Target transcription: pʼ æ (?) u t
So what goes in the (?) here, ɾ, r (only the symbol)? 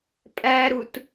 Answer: ɾ